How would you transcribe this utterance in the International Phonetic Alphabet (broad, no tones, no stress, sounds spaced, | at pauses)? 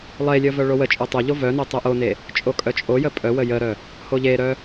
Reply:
lˠ e lʲ ə v œ ɭ o w ə t͡ʃʼ o tˤ o ʎ o v œ n o tˤ œ ʔ o n e | t͡ʃʼ o kʼ œ t͡ʃʼ o j ə pʼ œ w ə j ə ɾ œ | h o ʎ e ɾ œ